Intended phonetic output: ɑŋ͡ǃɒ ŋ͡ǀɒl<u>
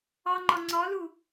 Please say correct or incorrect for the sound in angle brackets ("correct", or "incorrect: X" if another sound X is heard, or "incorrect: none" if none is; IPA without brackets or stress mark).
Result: correct